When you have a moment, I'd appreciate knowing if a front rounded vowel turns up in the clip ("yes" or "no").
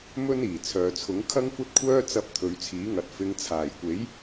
yes